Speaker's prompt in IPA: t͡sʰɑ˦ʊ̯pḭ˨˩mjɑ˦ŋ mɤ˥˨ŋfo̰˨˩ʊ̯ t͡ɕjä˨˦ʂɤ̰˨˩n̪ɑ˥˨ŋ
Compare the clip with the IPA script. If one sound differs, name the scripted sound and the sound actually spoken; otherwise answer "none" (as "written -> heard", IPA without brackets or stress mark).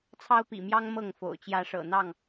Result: none